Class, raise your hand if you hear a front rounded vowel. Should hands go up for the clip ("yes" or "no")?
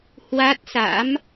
no